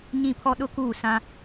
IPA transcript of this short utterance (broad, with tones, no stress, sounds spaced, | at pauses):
ɲ ĩ˦˨ pʰ ɔ˦ ɗ ʊ˦ k uː˦˨ s ã˦